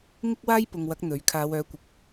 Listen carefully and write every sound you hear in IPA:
ŋ ɪ˥ k̚ w aː˥ j p ʊ˨ ŋ w ɐ˨˥ k̚ n̪ ɵ˨˥ ɥ kʰ aː˨˧ w œː˨˥ kʷ ɪ˨ k̚

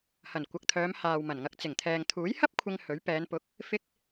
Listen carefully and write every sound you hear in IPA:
h ɐ˨˩ n kʷ ɐ˨ k̚ t̪ʰ œː˨˧ m h aː˨ w m ɐ˨˩ n ŋ ɐ˧ k̚ t͡s ɪ˨˩ ŋ t̪ʰ ɛː˨ ŋ t̪ʰ uː˨˥ j h ɐ˥ p̚ kʷʰ ɪ˧ ŋ h ɵ˨˥ ɥ p ɛː˨˧ n p ʊ˨˥ k̚ | f ɪ˧ k̚

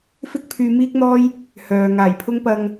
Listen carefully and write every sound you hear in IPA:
f ɪ˥ k̚ pʰ yː˧ m iː˥ k̚ n̪ ɔː˥ j | h œː˨ ŋ aː˨˩ j pʰ ʊ˥ ŋ p ɐ˨ ŋ

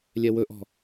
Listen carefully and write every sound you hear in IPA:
lʲ ɛ w ɵ ʔ ɔ̤

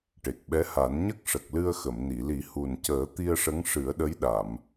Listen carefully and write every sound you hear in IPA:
ʈ e˨˩ k̚ ɓ ɛ˧˥ h a˨˩˦ n ɲ ə˦˥ k̚ ʂ ə˨˩ k̚ l ɨ˧ ə̯ x ə˨˩˨ m n i˨˩˨ l i˨˩˦ h u˨˩ n c əː˨˩˦ t̪ i˧ ə̯ ʂ ə˧˥ ŋ ʂ ɨ˨˩˦ ə̯ ɗ ə˧˥ j ɗ a˨˩˨ m

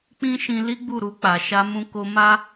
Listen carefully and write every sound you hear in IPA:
k͡p ĩ˦ ʃ ĩ˧ l i˦ ɡ͡b u˦˨ ɾ u˧ k͡p a˨ ʃ a˧ m ũ˧ k o˧ m a˦

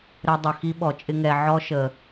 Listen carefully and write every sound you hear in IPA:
ɾ ɛ˧ dˤ ə˨ x i˦ ɓ ɔ˨ t͡ʃʼ ɪ˦ ŋ ɛ˧ ʕ ɔ˦ ʃ ə˨

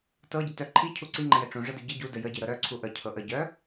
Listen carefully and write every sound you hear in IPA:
t ɤ ɟ ə t œ ǃʰ i cʰ u ǀ i ŋ͡ǃ ə̃ j ɛ ʈ͡ʂ ũ ʐ ə d ɘ ɟ ɘ ɟ u d ə j ə ɟ i ɾ ɤ ɾ œ ǀʰ u ʔ ə cʰ ɤ ʔ ə ɟ œ

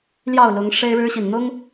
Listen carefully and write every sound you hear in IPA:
l j ɑ˥˨ ʊ̯ l ʊ˨˦ ŋ ʂ e˦ ɪ̯ ɻ ɻ̩˦ ɕ i˨ n n̪ ʊ˦ ŋ

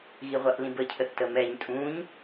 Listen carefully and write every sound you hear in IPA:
ɣ i ʁʷ a ʔ l ĩ b ə cʰ ə θ t ə m ɛ ɲ tʼ ũ ɲ

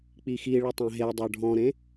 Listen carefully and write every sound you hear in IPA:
k͡p i x i ɭ e tˤ ɛ̃ ɦ e dˤ ə˞ ɖʱ ɔ̃ ɾ ẽ

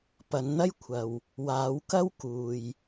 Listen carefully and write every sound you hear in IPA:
p ɐ˨˧ n n̪ ɐ˥ j kʷʰ ɐ˨ w | w aː˨˧ w k ɐ˥ w k uː˨ j

